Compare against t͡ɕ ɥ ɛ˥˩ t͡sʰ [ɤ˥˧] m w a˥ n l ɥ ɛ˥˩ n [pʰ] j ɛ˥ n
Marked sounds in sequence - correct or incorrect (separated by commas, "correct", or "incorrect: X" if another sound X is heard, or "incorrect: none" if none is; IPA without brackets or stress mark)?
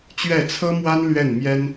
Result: incorrect: ɤ˥, incorrect: m